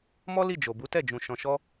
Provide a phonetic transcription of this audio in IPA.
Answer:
mɔ˦li˦˨ d͡ʒo˨bu˨˦tɛ˦˨ d͡ʒũ˧ ʃɔ̃˧ʃɔ˦

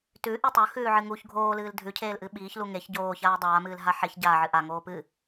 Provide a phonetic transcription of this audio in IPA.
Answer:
tʉʔi tˤɵxʉːʕɨ ŋuç ɡʱoːlɨːl dʱʉcʰeːlʔɨ ɓiːçlu ŋeç ɟoːçaː dˤaːmɨːlɦa ħeç ɟaːʕɨ ʔaŋoː pɨ

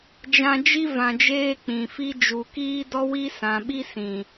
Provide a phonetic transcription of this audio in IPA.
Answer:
d͡ʒã˧d͡ʒi˦ vã˨d͡ʒeː˧ k͡pĩ˨fi˦ d͡ʒu˨kiː˦dɔ˦wi˦ sã˨ɓi˦sĩ˨

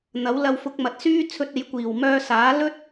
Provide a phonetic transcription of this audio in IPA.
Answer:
n̪ɐ˨˥wlɐ˧wfʊ˧k̚ mɐ˨˥t̚syː˥ t͡sʰɵ˧t̚e˨˥jkʷiː˨˩w mœː˧saː˨˥ lɵ˥t̚

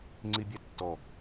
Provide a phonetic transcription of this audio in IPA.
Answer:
ŋ͡ǀibʲætːɔ

